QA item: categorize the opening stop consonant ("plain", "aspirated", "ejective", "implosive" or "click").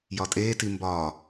ejective